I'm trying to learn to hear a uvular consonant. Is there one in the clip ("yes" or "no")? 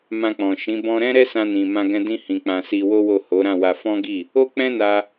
no